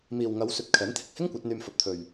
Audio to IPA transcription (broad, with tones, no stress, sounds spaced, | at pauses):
m iː˨ w ŋ ɐ˨˧ w s ɵ˨ t̚ kʰ ɛː˨˥ n t̪ʰ ɪ˨ k̚ h ɪ˥ ŋ kʷ ɐ˨˥ t̚ n̪ yː˧ m f ɐ˨ p̚ t̪ʰ ɵ˨ ɥ